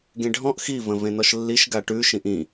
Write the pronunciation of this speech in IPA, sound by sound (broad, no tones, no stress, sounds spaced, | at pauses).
ɡ ẽ ɖʱ ɔ̃ ʔ x i v ə̃ v ẽ n ɔ ʃ lː i ʃ ɡ a ʈ ʉ ʃ ĩ ʔ ĩ